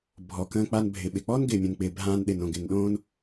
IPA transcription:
bʱɔ˩kə̃ː˧k͡pa˧n bʱɪ˩ɓɪ˩k͡pɔ˥n ɡɪː˩mʲõ˩nk͡pɪː˩ bʱãː˧nɗɪ˩nõ˩ ɡɪ˩nɗõː˥n

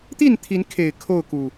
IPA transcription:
t̪i˥˨nt̪ʰi˨˦nkʰe˨˩ɪ̯ kʰo˥˨ʊ̯ku˨˩

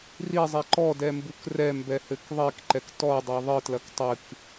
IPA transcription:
rizˤɛ ǃɔdɛmbuk rɛmbɛhɘk ðˤikǃɛk tɔdˤɛ ðˤɨtlɐk tˤɨk

